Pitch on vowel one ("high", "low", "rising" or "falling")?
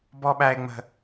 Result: high